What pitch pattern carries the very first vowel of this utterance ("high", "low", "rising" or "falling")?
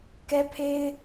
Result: high